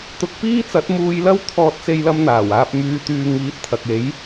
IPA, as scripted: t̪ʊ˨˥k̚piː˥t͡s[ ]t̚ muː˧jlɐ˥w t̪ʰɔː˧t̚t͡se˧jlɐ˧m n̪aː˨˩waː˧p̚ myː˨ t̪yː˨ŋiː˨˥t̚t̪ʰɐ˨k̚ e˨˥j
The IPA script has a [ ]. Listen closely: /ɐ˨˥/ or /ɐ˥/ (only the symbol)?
ɐ˨˥